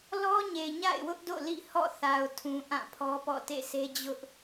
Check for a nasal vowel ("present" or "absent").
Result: present